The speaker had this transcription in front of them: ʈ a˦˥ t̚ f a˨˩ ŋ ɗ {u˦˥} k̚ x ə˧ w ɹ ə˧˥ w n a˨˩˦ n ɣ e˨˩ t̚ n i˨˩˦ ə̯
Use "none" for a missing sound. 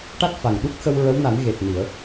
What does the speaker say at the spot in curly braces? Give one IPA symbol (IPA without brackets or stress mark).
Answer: u˦˥